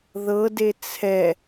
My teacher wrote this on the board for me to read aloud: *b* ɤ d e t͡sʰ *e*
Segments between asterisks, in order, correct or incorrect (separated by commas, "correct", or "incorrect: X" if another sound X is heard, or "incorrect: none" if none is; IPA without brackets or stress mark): incorrect: ð, incorrect: ɛ